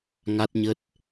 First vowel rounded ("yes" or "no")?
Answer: no